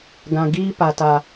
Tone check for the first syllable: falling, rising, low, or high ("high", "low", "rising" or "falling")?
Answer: low